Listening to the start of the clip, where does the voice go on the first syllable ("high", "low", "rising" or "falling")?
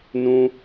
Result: high